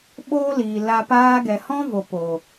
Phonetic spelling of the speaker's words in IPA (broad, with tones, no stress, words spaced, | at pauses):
ɓoː˦liː˨ la˧ paː˧ɡɛ˨ hɔ̃˦vo˨ po˨